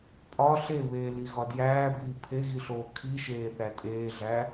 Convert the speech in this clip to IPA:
pʼɒ ɬeβeː liɣɒdjæːbiː pʰeɣiɬoː kʰiʃeː θætʼeːɮæ

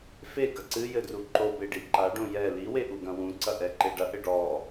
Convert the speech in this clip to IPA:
feɡɐ ǀɨ jɘdruǃobe ɖiǃaɖõ jɛ liwe ʔuɡɐ̃wũǀɐ ʔɛǃeɖɐʔɘ ɖɔ

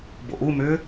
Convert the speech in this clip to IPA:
bo̰ʔumʏː

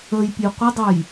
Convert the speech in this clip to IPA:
əjpʲe qʷədˤəj

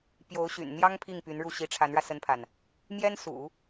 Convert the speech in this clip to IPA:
pjo˧˥ʊ̯ɕy̰˨˩n n̪jɑ˥ŋ pʰi˥˩ŋpy˧˥nɻu˥˩ ɕi˧˥ʈ͡ʂʰa˧˥nɻä˧ sə˥npʰa˨n | mjɛ˥nsṵ˨˩˦

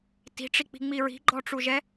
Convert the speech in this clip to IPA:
ti̤ʈ͡ʂik͡pi̤ŋ͡mi ɹi̤ɡ͡ǃɔʈ͡ʂuʒɛ

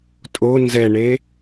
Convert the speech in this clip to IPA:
tʼo nzɛɳe

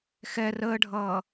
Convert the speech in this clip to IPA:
xɛ rəːɖʱʌː

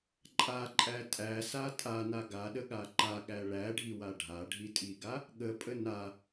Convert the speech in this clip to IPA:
ǃʼaǃʼæ tʼæsa tʼana ɡaɗəɠa ǃaɠæ ɭæɖʱiwa ɖʱaɖʱitʼiɡa | ɠəpʼə na

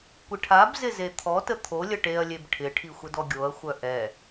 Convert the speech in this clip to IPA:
kʷɪʈʰabzɪ zet̪ʰɔtə t̪ʰolʲə ʈeɐ̯lʲeb ʈʰɪʈʰi xʷədɔɡʲoɐ̯xʷœ ʔɛ

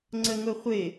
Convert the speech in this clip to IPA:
ŋ͡ǀəŋʊχʷɪ

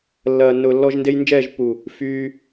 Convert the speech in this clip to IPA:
lːɐː˨ nːʊː˨lːɔ˧ʒ nde˧jnd͡ʒɛː˦˨ʒpːu˨ | fyː˧

